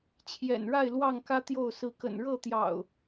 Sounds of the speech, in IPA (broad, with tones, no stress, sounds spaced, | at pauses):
t͡ɕʰ j ɛ̰˨˩ n ɻ a˥˨ ɪ̯ l w ɑ˥˨ ŋ k ä˦ t̪ j o˥˨ ʊ̯ s ɹ̩˨˦ k ə̰˨˩ n ɻ ɤ˥˨ t̪ j ɑ̰˨˩ ʊ̯